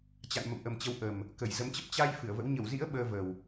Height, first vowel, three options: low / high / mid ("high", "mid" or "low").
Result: low